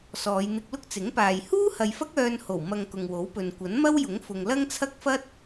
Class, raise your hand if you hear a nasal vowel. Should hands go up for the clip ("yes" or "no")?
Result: no